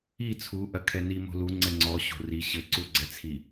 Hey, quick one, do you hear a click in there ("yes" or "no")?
yes